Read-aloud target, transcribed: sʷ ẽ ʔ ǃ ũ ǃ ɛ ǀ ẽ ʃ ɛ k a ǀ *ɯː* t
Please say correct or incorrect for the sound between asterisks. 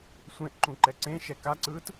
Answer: correct